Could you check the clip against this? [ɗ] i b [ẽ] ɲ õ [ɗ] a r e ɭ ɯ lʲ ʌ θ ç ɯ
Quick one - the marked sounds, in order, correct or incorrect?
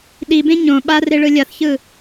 correct, correct, incorrect

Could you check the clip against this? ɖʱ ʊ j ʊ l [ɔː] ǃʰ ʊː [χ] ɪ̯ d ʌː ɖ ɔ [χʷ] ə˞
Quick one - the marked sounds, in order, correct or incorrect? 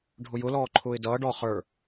correct, incorrect, incorrect

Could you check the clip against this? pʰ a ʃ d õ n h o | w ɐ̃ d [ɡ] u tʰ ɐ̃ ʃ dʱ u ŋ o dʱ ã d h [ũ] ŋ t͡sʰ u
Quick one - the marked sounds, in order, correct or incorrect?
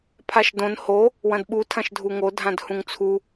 incorrect, correct

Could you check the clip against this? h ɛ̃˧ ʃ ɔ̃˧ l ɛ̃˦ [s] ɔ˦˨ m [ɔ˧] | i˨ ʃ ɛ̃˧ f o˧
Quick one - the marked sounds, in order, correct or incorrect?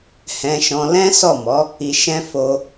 correct, incorrect

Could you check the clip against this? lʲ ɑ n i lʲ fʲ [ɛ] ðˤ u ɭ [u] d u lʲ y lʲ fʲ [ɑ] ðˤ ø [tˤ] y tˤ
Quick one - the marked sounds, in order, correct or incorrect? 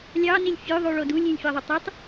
incorrect, incorrect, correct, correct

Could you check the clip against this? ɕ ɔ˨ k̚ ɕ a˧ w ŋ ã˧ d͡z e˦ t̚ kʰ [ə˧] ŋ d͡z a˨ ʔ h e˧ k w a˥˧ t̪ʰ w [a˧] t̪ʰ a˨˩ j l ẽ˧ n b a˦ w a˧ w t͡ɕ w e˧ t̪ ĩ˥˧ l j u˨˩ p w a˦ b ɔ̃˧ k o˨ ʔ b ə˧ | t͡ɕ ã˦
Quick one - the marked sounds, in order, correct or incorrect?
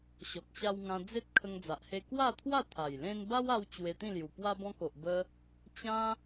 correct, incorrect

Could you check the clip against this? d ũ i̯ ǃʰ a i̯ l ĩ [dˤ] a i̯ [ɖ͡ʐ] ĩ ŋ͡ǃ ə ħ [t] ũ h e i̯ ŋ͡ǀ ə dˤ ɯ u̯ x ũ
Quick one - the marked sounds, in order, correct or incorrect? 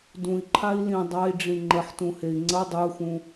correct, correct, correct

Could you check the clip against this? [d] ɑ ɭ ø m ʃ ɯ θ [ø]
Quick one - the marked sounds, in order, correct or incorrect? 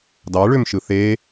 correct, incorrect

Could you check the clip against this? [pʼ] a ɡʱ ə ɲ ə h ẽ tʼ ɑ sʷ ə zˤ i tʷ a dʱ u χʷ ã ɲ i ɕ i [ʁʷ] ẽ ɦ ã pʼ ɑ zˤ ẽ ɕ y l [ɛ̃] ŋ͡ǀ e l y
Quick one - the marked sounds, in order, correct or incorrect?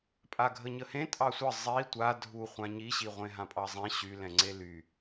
correct, correct, correct

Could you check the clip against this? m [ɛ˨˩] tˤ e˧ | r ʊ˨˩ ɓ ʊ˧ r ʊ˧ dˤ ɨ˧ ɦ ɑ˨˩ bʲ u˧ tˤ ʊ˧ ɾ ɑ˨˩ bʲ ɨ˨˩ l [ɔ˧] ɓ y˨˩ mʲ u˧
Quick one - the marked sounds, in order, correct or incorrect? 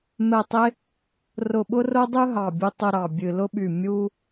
correct, incorrect

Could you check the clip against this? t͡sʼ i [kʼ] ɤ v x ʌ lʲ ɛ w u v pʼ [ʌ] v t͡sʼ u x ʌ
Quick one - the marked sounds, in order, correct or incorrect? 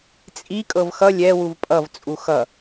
correct, correct

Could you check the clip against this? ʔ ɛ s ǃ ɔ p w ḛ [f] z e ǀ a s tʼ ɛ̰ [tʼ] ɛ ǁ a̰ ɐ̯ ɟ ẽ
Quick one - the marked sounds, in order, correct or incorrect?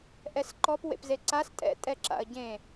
incorrect, correct

